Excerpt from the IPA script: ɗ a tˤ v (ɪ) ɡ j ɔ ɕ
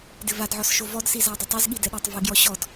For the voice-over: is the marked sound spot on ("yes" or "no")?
yes